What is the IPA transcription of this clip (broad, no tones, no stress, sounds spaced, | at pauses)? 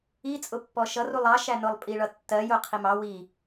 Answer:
i t͡sʼ ʊ pː ɔ ʃ ʌ r u lˠ ɑ ʃ æ n ʊ lˠ pʼ i ɭ ʌ tː ɜ j ʊ qʰ i m ɑ w i